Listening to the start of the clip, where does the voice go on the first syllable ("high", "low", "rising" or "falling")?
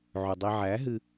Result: low